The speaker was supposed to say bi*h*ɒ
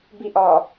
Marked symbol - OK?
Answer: no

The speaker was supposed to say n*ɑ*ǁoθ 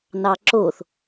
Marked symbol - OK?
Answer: yes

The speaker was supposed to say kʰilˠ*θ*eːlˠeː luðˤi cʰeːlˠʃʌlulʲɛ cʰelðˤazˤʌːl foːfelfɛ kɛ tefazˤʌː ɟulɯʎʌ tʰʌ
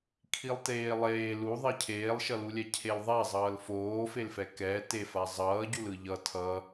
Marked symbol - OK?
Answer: no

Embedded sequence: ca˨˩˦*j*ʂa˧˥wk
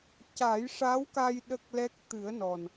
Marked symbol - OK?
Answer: yes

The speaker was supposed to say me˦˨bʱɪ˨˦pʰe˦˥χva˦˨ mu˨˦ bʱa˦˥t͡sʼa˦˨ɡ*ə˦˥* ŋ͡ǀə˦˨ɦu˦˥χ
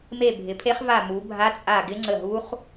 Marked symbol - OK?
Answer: no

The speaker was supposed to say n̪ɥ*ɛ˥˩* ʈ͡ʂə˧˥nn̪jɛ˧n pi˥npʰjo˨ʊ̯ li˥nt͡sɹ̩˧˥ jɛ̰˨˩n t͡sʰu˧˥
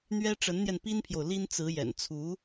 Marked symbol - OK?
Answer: no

